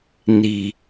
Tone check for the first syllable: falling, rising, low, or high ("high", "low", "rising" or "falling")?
low